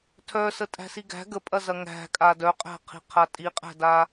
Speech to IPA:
tʰ œ s ə tʼ æ̤ s i ɡ æ̤ ɡ ə pʼ ɐ z ɐ ŋ æ̤ kʼ a d œ qʼ æ̤ qʰ i̤ qʰ a tʼ i qʼ æ̤ d a

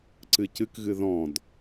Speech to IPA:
ǀ ɨ c ɨ k ɣ ɨ ð ɔ̃ d

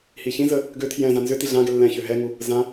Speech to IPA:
h i ç ĩ z ə | ɡ ø tʰ j ɛ̃ z ã n z ʏ t i ɮ ã ɡ ɛ lː ɛ̃ ç ø ɦ ɛ ŋ u | z ã

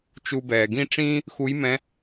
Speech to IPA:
t͡ʃ u˧ b ɛː˩ ɡ ĩ˥ ʈ͡ʂ ĩː˥ | x u˧˥ j m ɛ̃˧˥

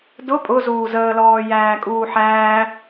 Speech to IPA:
d ʊ pʼ ʊ z uː z əː l ɔː j æː kʼ uː ħ æː

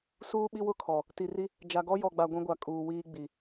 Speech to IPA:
s uː˦ ɓ i˦ w ʊ˦ kʰ ɔ˨ | t i˨ r i˦ | d͡ʒ a˨ ɡ ɔ˦ j ɔ˨ ɡ͡b a˨ ɡʷ ĩ˦ ɡʷ a˨ kʼ uː˨ w iː˦ ɡ͡b i˨

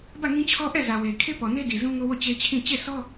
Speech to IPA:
b ä˦˨ ŋ ĩ˦ t͡ɕʰ ɔ˦ ʔ ɛ˦˨ z ä˨ w e˨ kʰ e˦ p ɔ˨ n e˦ d i˨ z ũ˦ ŋ o˦ w o˦˨ t͡ɕ e˦ t͡ɕʰ ĩ˦˨ t͡ɕ e˦˨ sʰ ɔ˦

